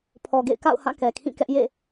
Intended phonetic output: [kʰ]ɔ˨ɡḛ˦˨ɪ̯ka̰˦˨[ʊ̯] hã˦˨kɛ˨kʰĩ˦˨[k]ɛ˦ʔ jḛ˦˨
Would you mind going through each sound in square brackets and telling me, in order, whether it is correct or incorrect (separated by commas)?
incorrect, correct, correct